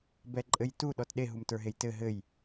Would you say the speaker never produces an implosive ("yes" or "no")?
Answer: no